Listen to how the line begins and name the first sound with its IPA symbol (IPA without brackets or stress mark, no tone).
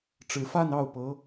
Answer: ʈ͡ʂ